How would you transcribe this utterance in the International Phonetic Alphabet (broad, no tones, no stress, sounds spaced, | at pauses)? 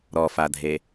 ɾ ɔ f a dʱ e